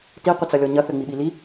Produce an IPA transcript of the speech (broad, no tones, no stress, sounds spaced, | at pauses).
t i qʷ ɘ t͡s ɐ lʲ ɔ ɲ ɐ θ ɘ ŋ͡m i ɓ i l i